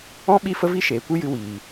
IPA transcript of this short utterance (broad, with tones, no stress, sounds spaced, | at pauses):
ɔ̃˦ ɓ i˦˨ f ə˦ v i˦ ʃ eː˨ kʷ ɨ˦ j ɨ˧ w iː˨